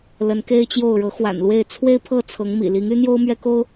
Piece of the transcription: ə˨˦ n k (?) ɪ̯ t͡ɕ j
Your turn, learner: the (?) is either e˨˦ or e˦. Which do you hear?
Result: e˦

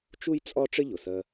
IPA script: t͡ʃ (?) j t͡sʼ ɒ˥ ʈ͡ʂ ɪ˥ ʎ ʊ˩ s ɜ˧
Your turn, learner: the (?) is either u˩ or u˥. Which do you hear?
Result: u˥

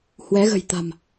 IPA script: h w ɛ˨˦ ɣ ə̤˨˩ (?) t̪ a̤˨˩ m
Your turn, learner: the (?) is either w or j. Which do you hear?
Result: j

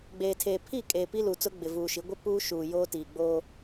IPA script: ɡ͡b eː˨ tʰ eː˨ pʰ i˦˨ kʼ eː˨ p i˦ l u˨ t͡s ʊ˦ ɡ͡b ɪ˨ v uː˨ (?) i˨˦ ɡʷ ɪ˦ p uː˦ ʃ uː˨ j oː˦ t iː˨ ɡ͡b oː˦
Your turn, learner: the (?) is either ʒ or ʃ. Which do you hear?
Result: ʃ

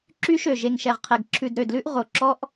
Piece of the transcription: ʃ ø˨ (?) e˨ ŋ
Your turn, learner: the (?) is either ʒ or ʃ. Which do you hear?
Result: ʒ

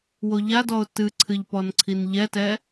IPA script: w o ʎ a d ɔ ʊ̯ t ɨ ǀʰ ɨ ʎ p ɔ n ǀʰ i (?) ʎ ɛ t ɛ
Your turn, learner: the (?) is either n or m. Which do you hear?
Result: n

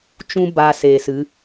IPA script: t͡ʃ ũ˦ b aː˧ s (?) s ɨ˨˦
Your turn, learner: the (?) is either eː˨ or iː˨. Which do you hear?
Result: eː˨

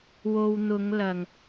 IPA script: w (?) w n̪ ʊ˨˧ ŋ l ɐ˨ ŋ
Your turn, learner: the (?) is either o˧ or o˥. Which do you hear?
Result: o˧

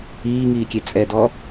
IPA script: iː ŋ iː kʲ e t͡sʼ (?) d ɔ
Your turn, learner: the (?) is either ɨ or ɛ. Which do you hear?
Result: ɛ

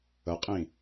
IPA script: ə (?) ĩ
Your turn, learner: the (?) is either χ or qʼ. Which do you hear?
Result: qʼ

